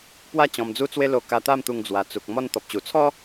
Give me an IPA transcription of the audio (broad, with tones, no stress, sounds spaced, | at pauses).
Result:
p w a˦ t͡ɕ ɔ̃˧ m d͡z u˦ t͡s w e˦ l o˧ k a˧ t̪ a˥˧ m t̪ u˧ ŋ d͡z w a˨˩ t͡s u˨ k̚ m ɔ˧ n t̪ ɔ˨ p̚ t͡ɕ u˨˩ t͡sʰ ɔ˦